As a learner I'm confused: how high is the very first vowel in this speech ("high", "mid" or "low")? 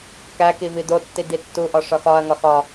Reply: low